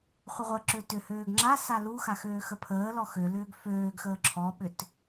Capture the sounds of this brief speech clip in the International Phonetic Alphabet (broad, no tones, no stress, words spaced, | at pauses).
χʷəʁʷəǁø tʏhøːɡ ŋ͡ǁasa luxax øːxəpʰəːlɔ xø lʏːɡføːɡxəː ǁʰɔɓʏt